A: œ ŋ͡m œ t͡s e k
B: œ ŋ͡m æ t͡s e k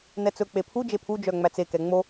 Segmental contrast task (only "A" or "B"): B